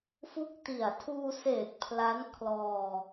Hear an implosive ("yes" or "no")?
no